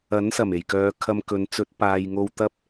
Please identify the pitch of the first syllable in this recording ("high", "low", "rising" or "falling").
rising